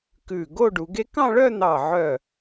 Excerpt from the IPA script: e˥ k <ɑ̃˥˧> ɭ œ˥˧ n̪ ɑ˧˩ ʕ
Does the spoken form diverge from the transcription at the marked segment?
no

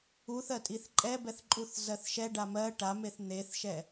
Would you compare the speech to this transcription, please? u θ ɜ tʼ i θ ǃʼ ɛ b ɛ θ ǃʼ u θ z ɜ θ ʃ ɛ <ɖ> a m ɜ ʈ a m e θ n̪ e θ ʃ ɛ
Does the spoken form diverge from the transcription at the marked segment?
no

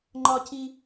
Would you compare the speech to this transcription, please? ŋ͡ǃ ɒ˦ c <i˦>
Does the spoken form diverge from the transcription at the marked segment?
no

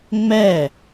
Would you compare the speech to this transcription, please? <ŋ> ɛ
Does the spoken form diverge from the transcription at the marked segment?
yes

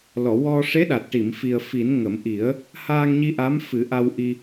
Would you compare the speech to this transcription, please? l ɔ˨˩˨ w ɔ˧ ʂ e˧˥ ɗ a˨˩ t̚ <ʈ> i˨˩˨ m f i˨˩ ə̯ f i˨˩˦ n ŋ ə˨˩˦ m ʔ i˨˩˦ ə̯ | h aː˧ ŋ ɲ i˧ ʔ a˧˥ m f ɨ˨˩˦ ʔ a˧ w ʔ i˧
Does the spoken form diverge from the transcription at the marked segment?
no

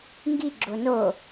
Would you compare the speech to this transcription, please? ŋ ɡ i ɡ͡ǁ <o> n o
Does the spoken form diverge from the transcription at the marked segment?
no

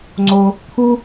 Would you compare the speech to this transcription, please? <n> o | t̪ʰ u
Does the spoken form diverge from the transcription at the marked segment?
yes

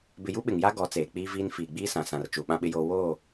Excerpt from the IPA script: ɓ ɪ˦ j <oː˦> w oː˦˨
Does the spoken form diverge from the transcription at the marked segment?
no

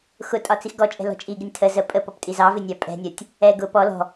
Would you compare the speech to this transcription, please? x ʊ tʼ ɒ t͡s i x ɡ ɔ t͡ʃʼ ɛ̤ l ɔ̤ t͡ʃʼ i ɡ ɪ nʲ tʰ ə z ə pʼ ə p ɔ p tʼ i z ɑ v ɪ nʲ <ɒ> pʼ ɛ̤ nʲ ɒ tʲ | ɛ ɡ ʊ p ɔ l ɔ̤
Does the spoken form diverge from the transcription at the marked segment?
yes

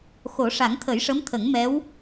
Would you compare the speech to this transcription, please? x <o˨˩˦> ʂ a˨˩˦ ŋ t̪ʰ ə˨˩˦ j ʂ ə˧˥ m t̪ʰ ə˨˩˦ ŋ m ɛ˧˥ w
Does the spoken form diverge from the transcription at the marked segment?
no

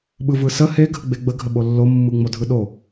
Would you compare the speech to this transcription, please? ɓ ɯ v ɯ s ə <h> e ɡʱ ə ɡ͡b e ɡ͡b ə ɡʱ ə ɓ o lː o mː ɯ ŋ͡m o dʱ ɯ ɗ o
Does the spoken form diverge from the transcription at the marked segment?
no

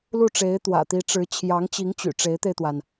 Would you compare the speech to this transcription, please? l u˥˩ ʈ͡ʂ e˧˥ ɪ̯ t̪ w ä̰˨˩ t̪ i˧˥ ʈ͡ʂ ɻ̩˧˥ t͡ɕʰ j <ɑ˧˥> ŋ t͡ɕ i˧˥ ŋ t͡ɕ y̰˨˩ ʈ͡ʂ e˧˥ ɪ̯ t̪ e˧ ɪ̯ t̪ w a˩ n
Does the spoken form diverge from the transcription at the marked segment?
no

